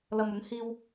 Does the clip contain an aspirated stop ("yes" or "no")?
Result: no